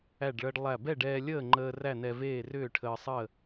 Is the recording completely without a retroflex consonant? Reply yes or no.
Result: no